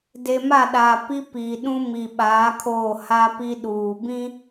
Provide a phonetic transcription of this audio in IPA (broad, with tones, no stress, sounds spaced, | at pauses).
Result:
d e˨ m a˦˨ ɗ aː˨ p i˦ p iː˨ ɗ ũ˦ m i˨ ɓ aː˨˦ kʰ oː˦˨ h a˦ p i˦ ɗ uː˨ b ĩ˦